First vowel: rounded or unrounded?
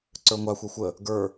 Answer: unrounded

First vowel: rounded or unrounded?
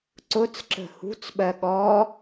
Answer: rounded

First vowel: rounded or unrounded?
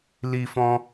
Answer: unrounded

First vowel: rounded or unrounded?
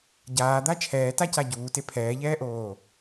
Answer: unrounded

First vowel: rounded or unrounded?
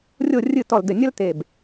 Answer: rounded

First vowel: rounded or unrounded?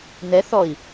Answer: unrounded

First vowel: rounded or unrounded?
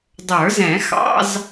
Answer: unrounded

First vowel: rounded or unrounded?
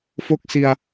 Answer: rounded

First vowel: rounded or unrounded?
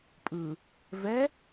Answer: unrounded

